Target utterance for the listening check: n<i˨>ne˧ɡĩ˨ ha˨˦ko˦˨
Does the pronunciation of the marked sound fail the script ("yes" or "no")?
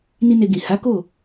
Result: yes